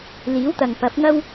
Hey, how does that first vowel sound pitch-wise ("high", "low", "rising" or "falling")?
rising